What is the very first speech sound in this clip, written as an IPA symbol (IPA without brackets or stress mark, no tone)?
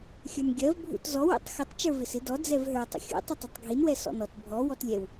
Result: xʲ